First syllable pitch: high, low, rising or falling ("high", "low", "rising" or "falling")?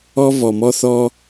high